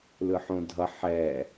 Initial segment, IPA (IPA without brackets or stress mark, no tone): l